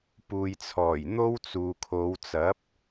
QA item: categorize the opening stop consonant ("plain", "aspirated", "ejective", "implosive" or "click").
plain